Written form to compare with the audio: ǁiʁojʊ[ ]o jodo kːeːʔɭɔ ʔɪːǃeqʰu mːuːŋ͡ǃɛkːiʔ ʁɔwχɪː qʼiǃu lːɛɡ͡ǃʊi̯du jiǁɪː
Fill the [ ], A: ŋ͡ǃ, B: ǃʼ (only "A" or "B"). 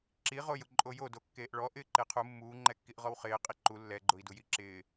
B